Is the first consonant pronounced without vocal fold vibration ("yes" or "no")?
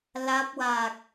no